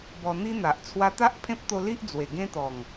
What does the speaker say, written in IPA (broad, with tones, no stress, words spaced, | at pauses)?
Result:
bɔ˧n̪i˦n̪a˨ʔt͡sʰwa˦ t̪a˦ʔpʰẽ˦p̚t̪o˧ li˦ʔd͡zwe˨˩ ɡẽ˦t̪ɔ˨˩ŋ